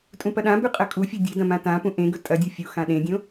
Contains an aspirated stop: no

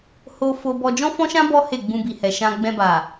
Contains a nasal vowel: yes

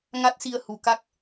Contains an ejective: no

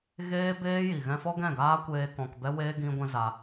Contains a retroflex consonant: no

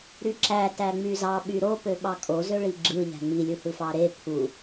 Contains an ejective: yes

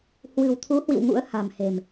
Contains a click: no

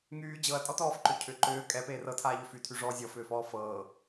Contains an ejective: yes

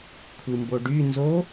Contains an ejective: no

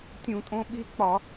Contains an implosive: yes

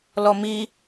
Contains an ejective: no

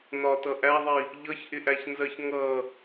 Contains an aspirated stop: no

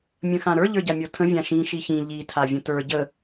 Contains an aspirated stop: yes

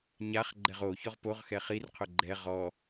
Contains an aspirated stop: yes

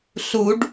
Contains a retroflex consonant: yes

